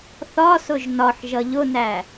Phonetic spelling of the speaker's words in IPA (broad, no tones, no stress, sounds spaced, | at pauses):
θ ɒ s ʊ ʒ n ɒ ħ ʒ ʌ ʎ ʊ n æ